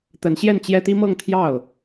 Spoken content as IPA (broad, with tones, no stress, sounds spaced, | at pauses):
t̪ ə˧˥ n ɕ j ɛ˥˩ n t͡ɕ j ɛ˥ t̪ i˥ m ɤ˥˧ ŋ t̪ʰ j ɑ˥˩ ʊ̯